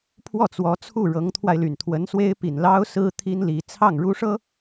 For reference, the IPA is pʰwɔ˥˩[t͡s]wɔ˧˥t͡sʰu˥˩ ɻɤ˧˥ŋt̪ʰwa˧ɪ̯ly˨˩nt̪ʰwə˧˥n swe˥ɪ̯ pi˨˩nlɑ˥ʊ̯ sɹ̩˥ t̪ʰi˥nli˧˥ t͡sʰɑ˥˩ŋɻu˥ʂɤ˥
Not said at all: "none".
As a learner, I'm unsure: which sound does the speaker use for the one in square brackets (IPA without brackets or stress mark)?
t͡s